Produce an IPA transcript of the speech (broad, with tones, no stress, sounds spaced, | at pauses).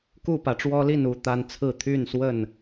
k u˥˨ p ä˨˦ ʈ͡ʂ w ɔ˦ l i˥˨ n u˦ t̪ a˦ n t͡sʰ ɹ̩˥˨ t̪ʰ y˥˨ n s w ə˥˨ n